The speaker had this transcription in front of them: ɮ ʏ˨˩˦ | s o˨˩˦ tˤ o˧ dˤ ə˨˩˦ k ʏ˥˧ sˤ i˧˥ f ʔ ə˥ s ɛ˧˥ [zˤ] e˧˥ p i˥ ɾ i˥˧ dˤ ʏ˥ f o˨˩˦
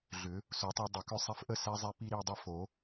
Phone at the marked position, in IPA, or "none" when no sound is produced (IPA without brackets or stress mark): zˤ